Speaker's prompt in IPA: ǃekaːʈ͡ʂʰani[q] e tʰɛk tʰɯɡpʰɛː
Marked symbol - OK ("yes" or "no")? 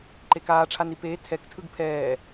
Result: no